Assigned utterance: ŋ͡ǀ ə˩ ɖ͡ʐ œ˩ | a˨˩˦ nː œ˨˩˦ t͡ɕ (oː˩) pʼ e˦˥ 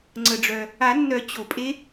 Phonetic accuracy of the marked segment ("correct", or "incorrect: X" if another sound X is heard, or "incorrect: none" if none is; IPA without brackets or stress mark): incorrect: o˩